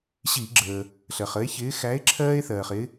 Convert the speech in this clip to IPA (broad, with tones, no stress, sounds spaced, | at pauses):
ɕ i˧˩˧ ɡ͡ǁ əː˩ | ɬ ɜ˩ χ ə˨˥ e̯ ç ɪː˨˥ x æ˨˥ e̯ ǁʰ ɜː˦ e̯ θ ɜː˩ χ ɪ˨˥